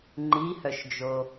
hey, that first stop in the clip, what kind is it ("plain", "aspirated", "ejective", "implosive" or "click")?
click